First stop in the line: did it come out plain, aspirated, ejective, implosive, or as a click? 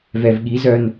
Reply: implosive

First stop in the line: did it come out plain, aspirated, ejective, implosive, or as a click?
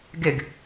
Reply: plain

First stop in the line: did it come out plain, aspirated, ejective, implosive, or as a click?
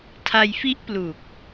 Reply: aspirated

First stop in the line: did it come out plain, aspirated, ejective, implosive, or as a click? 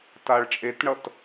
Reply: plain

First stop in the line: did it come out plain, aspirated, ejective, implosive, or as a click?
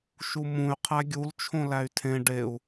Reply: aspirated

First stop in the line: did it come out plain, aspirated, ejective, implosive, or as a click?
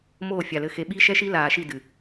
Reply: implosive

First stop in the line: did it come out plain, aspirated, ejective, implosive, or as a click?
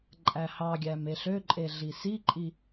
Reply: click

